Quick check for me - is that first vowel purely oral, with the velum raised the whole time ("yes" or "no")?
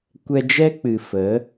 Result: yes